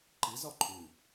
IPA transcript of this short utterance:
ǃizɒ ǃʰʉ

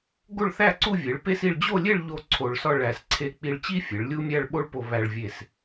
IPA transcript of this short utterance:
ɡo˥˧ɭθæ˥˧ ǀu˥˧vʲe˩˧ɭpe˥s i˧ɭd͡ʑo˥˧lʲe˥˧ɭ ʎo˥ǀʰo˧ɭsɒ˥˧ ɭæ˧˩s ǀʰe˧˩k͡pi˧ɭt͡ɕi˥fʲe˩˧ɭ lʲu˥mʲæ˥˧ɭɓo˥ɭpo˧ βæ˧ɭvʲe˧˩s

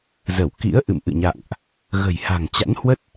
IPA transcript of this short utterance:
zə˧˩wkḭ˧˥ə̯ ʔɨ̰˧˨mʔɨ̰˧˨ɲa̰ː˧˨ŋʔ | ɣə̤˨˩jha̤˨˩ŋt͡ɕa̰˧˥n hwə˦˥t̚

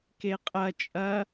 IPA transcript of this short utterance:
keqʼɐ t͡ʃʼɐ

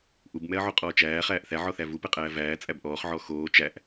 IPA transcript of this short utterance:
ʔubmɛɐ̯ʕoqʼɔː t͡ʃæːχæːʔ θæʕɔθæ vupɛqʼæː væːt͡sʼæb ʔɔːχʕɔ xoː t͡ʃæʔ

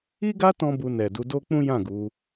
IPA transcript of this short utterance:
i˦ɡa˦ tɔ̃˦bu˧ nɛ˨ du˧do˦k͡pũ˦jã˦˨ ɡu˧

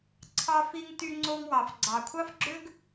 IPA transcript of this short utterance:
ǀʰɑ˧fi˧ŋty˧ ŋ͡ǀo˧ŋwɑ˩fɡ͡ǀɑ˩kʷʰɑ˥f ɡ͡ǁø˥ɡ

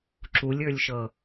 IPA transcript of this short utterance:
ǁulʲə˞lʲʃɤ

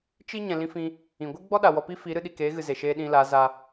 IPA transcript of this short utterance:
t͡ʃi˦ ɲɛ̃˨lĩ˧fĩ˧ | ĩ˨ ɡʷɨ˦ɡ͡bɔ˦ɗa˨ wɔ˧pi˦fi˨˦ ɾɨ˧ɗi˨keː˨˦ɣɨ˨ ze˨ʃeː˧ ɗĩ˧la˨˦ za˧

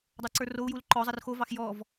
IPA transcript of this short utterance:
dˤə˞ǀə˞rou̯jul ǃɔzˤər xovɑx jɔv

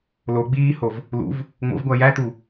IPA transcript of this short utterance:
lo ɡ͡biːhov | lṵv | ŋ͡mo̰vɡʷæ jætu

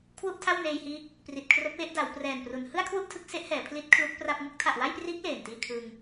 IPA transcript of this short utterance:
kʰwu˥˩ʔtʰa˥˩wneː˧jhiː˦˥k̚ | pri˨˩t̚kʰro˦˥k̚we˦˥ʔ da˩˦w prɛː˨˩npru˩˦n hɯ˥˩a̯kʰwu˥˩ʔ tʰɯ˦˥k̚se˦˥ʔhɛː˩˦ pʰli˦˥t̚ kʰlu˦˥k̚pra˥˩p̚ ŋɯ˥˩k̚tʰa˨˩ʔwa˥˩jpriː˦˥k̚ leː˨˩ntiː˥˩ kʰɯ˧ŋ

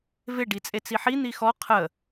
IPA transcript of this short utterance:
vɪ ɖit͡sʼet͡siħi n̪ixɔ qʰə

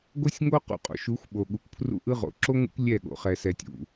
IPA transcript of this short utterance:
ɡo˦sʲŋo˦ qṵ˨qʼo̰˨ʃu˨˦xʷɓo˨ ɠu˨kʷpʰrṵ˦ʔɯ˦ʁo̰˨˦ ǁo˦ ŋṵ˦kʷ lʲɛ˦˨ɠo̰˨ χɛ˨sɛ˨tʲṵ˨

